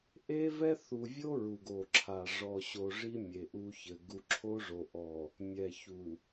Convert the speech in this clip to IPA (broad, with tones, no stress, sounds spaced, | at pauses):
ʔ e˦ v ɛ˦ θ u˨ vʲ o˦ ɹ u˨ ɡ o˨ ǁʰ a˨ ʐ ɔ˨ ɕ o˨ ʐ i˦ mʲ e˨ ʔ u˦ ç ɘ˨ ɡ u˨ ǁʰ o˦ ʐ o˨ ʔ ɔ˨ | mʲ ɛ˨ ç u˨